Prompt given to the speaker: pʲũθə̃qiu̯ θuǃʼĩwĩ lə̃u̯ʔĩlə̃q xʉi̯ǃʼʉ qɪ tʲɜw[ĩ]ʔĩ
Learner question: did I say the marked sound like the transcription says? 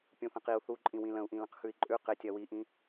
no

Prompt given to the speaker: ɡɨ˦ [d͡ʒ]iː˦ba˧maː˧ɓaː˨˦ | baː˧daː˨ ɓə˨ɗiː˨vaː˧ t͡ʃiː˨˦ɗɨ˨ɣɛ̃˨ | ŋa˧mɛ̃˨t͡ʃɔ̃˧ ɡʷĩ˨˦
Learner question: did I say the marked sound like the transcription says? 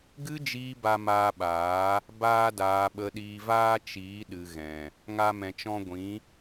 yes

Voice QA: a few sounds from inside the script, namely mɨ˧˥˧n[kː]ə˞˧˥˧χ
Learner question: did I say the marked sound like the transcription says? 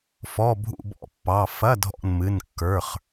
yes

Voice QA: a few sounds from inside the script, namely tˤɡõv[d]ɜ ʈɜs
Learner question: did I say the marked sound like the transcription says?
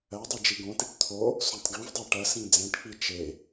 no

